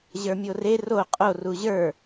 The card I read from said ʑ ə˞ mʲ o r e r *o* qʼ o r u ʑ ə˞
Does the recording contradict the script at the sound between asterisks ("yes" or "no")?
no